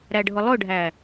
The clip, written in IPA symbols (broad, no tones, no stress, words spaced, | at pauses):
ɾæɖʱʊlˠʊɖʱæ